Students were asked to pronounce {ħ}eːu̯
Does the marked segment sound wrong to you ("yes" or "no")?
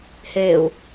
yes